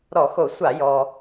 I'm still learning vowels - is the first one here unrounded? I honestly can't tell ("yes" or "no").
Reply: no